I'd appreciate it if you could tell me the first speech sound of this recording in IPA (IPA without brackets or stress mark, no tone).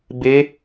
b